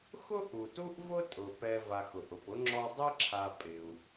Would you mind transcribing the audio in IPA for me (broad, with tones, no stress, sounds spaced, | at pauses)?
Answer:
x ʊ˥ ʔ u˩ t u˦ ʔ v ʊ˦ tʼ ʊ˩ p ɛ˨ v a˨ x ʊ˩ ʔ ʊ˩ p ʊ˥ ŋ͡ǁ ɔ˦ dˤ ɪ˥ ǁʰ a˨ pʼ ɪ˩ u̯